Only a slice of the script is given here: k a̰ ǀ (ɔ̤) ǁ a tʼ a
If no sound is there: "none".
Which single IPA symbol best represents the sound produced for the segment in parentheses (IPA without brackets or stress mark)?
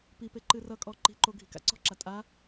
ɔ̤